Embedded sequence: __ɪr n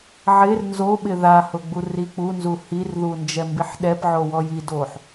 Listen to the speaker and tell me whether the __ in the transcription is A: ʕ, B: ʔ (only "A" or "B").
A